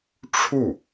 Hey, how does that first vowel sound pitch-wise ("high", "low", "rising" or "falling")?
falling